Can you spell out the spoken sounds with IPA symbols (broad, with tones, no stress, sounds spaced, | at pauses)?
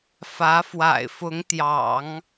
f ä˧˥ f w a̰˨˩ ɪ̯ f ʊ˧˥ ŋ t̪ j ɑ̰˨˩˦ ŋ